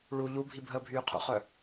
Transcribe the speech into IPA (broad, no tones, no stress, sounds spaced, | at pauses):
ɭ u ʎ u bʱ i bʱ əː bʱ yː qʰ ṵ χ œ